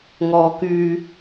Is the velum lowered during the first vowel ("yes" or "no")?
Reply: no